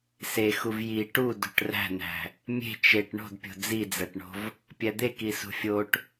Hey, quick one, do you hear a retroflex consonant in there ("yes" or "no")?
yes